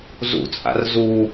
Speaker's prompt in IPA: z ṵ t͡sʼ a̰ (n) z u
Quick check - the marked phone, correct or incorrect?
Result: incorrect